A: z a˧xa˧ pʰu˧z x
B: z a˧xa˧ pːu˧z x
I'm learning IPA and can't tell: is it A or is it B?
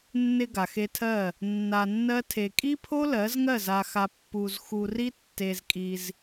B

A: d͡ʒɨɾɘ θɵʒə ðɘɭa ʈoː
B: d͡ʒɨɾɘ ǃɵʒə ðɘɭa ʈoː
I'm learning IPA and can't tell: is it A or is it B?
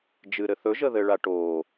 A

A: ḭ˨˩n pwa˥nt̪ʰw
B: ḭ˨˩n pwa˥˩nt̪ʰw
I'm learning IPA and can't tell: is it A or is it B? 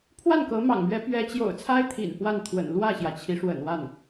B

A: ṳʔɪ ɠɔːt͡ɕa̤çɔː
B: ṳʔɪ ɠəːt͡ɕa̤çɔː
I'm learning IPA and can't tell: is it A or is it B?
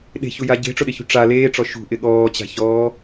A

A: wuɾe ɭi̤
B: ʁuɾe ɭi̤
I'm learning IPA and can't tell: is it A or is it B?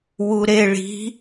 A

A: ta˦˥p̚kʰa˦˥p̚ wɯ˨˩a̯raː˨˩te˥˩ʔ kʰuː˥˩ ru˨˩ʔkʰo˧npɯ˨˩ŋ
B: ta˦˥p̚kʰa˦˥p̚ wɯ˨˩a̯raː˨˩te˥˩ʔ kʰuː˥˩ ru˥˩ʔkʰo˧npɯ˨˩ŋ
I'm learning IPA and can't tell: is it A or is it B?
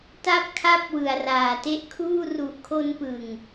A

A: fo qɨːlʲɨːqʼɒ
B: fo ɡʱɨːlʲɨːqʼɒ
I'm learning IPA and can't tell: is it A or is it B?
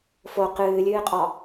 A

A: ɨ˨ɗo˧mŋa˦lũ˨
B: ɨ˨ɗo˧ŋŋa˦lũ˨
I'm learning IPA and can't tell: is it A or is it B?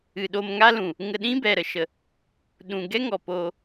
A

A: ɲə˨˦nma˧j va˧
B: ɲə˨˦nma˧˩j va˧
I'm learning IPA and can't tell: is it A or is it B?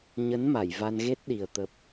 B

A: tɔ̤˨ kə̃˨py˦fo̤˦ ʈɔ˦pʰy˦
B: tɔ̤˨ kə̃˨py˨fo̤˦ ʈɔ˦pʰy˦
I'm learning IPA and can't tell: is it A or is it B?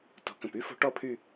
A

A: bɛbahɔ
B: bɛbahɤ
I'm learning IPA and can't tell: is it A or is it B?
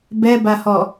A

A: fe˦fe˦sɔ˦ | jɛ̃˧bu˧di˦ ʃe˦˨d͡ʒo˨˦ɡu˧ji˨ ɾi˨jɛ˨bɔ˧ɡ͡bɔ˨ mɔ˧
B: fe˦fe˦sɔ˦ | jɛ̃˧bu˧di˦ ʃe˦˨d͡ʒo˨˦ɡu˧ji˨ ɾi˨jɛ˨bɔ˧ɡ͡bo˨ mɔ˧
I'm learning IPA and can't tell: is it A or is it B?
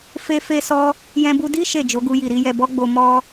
B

